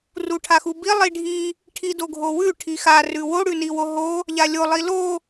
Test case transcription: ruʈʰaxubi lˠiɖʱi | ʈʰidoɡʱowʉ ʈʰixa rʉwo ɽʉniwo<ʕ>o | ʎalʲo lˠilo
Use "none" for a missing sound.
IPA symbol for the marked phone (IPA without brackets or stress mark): ɦ